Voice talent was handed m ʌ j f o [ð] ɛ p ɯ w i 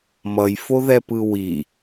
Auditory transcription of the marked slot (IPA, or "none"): ð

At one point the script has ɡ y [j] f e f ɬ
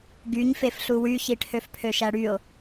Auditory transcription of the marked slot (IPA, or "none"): ɲ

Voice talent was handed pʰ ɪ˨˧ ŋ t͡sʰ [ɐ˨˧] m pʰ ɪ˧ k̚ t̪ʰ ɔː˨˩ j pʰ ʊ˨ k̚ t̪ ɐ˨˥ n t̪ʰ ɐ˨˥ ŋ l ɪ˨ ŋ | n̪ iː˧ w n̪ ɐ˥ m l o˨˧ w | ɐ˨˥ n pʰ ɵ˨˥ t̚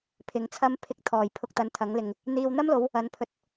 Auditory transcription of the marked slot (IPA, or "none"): ɐ˥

